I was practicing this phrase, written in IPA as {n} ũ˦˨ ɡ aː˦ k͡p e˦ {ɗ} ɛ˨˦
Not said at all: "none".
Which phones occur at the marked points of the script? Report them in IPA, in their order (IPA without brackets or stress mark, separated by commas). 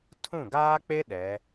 tʰ, ɗ